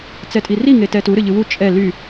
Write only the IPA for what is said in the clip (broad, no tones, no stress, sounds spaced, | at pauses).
t͡s ɛ tʼ i r i ŋ e t ɛ t u ɾ ɨ ʎ ɨ w u t͡ʃʼ ɛ l y